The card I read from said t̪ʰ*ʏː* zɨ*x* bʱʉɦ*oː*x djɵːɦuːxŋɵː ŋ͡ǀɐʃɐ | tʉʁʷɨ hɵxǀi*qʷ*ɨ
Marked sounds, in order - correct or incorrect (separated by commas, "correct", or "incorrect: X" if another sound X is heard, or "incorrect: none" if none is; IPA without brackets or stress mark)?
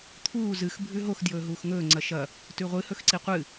incorrect: uː, correct, incorrect: o, correct